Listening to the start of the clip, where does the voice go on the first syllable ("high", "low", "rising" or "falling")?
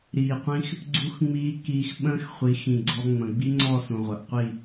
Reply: low